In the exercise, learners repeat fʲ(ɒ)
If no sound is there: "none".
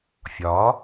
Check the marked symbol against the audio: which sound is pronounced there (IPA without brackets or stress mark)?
ɒ